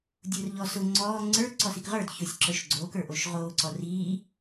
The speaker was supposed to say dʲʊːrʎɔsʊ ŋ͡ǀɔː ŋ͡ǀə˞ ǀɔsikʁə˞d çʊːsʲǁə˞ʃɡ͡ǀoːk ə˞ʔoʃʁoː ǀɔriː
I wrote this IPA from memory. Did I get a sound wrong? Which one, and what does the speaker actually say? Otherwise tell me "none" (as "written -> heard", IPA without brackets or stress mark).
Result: none